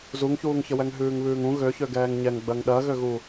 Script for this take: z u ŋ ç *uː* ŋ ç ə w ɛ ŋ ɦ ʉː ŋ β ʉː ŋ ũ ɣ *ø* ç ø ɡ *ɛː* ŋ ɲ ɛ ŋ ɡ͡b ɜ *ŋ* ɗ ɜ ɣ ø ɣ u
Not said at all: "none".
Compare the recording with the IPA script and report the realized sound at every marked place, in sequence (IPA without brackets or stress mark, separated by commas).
uː, ø, ɛː, ŋ